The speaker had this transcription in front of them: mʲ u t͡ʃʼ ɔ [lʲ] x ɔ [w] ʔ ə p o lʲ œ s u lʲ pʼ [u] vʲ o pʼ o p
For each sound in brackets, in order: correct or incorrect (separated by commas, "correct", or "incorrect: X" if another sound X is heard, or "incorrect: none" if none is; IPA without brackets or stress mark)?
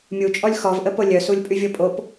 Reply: correct, incorrect: v, incorrect: y